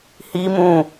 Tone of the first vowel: high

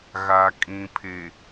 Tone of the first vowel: low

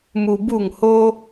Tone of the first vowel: low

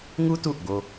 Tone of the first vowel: high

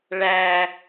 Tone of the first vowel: high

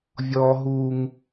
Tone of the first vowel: high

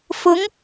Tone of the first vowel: rising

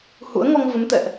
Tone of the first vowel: rising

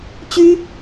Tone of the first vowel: high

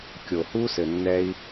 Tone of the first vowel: low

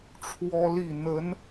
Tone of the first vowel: high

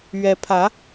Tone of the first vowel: rising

